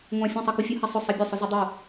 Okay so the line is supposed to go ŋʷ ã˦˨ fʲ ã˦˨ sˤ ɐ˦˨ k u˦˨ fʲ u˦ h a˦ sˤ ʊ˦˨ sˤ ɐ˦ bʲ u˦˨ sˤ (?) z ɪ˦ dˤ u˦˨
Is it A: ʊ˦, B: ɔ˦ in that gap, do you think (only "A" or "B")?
A